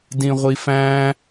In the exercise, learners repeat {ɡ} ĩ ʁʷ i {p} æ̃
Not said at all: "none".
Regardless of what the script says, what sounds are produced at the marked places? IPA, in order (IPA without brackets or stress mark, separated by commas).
d, f